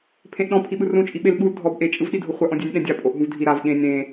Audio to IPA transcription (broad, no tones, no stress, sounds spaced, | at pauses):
pʰ ẽ ʔ ɗ ɔ̃ pʰ i ɓ ɯ r ũ t͡ʃʼ i ɓ e l ɓ u l dʱ ɔ b ʔ e t͡ʃʼ ɯ v ɗ i dʱ o χʷ a ʔ ɔ̃ dʲ ɛ nʲ ɗ ɛ̃ dʲ a pʼ o ʔ ɦ ũ v dʱ i ɾ a v ɠ ẽ nʲ ɾ ẽ